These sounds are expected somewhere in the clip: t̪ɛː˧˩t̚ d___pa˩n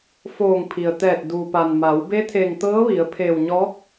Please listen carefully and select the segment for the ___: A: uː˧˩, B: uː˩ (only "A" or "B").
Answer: B